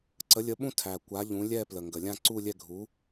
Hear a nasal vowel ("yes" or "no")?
yes